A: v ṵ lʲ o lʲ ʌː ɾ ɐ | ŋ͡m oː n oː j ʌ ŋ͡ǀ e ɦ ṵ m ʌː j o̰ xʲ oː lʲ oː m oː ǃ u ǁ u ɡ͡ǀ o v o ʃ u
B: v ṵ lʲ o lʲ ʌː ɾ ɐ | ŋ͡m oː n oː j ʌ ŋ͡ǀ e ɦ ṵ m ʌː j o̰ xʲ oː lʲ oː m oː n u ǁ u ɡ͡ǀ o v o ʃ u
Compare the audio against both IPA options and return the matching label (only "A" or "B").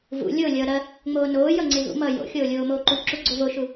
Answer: A